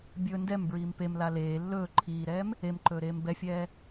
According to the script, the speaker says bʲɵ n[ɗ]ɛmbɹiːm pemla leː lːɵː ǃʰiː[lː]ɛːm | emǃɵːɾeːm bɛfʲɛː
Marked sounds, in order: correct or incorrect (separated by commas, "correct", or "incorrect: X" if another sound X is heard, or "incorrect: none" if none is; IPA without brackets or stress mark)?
incorrect: d, incorrect: ɾ